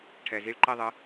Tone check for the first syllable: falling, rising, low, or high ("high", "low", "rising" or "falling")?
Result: low